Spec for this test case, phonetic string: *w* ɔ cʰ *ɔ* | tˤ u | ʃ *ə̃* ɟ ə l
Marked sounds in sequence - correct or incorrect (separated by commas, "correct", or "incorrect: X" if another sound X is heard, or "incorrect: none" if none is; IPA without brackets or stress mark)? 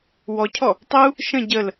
correct, correct, correct